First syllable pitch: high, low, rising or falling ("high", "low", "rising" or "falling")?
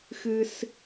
high